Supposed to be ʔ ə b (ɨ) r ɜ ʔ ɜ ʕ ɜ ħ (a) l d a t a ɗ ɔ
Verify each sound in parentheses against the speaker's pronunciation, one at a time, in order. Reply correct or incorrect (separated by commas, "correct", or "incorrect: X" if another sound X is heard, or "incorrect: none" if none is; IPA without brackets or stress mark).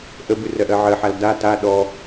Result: correct, correct